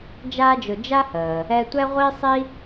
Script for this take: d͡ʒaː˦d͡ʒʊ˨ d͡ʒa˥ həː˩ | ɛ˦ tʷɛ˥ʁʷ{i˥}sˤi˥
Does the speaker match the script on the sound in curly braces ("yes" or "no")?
yes